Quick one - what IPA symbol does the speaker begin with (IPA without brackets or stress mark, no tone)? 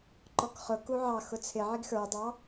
ǃ